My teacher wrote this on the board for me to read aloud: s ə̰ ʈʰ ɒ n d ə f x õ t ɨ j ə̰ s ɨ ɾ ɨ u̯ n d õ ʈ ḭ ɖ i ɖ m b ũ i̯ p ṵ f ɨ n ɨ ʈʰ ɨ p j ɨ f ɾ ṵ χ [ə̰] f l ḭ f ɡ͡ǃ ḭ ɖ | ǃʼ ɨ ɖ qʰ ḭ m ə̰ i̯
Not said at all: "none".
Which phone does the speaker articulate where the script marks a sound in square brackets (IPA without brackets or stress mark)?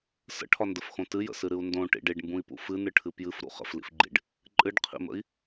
ə̰